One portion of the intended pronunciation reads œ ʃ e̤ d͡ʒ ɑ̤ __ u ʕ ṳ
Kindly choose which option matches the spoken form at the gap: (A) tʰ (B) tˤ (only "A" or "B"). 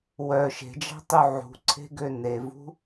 B